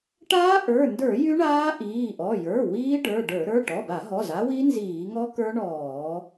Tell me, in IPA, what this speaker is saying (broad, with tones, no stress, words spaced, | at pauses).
ʈaː˦˥ʔə˞˩˧˩ndə˞˧˩˧ jy˦˥ɳaː˦˥ʔiː˩˧˩ʔɔ˩˧˩ jə˞˩˧˩ wiː˦˥ ɖə˞˩˧˩ɖə˞˧˩˧ ɾə˞˩˧˩ʈɔ˩˧˩ba˧˩˧ɦɔ˩˧˩z a˦˥wi˦˥ nziː˧˩˧ŋɔ˦˥kə˞˦˥ ɳɔː˧˩˧